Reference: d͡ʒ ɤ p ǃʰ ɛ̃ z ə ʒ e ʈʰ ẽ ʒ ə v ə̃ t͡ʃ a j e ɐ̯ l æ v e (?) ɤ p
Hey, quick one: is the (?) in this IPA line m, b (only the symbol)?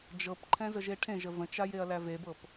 b